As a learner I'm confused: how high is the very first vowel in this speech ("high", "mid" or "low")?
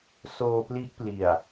mid